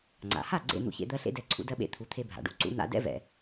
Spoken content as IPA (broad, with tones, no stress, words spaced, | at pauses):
ŋ͡ǀa̰˩ha˥˩ ɡ͡ǀḛ˥˩ n̪ṵ˧çḛ˧ d̪ɜ˧ɬḛ˧dɛ˩˥ ǀʰṵ˧dɜ˧ɓḛ˧ t̪ʰu˩˥t̪ʰe˧bʱa̰˩ɖṵ˥˩ ǀṵ˧n̪a̰˧dɛ̰˥vɛ̰˩